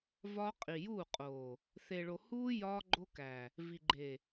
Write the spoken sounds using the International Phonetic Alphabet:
vɒ˦ qʼi˨juː˦˨qʼoː˨ | θe˨ɭo˨huː˦ jɒː˦ɡ͡ǃo˦kæ˨ | vi˨ɡ͡ǃe˨

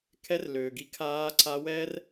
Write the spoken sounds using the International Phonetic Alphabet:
kʰɛ˧˥r løː˩ɡi˧ kʰaː˧˥ǀa˧˥wɛ˥r

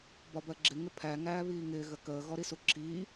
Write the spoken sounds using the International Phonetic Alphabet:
bɒbɜɡ͡ǁɪ ŋɪpʰæ ŋæːβiːŋɪː ɣəkəː ɣɔɾisuǁʰiː

